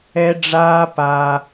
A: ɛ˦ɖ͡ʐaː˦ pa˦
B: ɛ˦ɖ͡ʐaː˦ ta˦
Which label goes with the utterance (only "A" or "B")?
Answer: A